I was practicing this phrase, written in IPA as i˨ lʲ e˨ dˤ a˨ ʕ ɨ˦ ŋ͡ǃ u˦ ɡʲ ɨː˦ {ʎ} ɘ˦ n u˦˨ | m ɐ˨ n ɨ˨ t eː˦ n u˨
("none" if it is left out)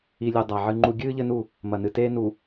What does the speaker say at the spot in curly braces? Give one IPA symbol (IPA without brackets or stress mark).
ʎ